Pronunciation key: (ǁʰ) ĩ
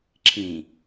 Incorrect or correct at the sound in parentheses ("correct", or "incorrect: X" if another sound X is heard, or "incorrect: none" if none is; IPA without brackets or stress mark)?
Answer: correct